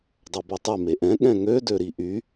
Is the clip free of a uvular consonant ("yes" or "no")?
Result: yes